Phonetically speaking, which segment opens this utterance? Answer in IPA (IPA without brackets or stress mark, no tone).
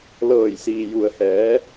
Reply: l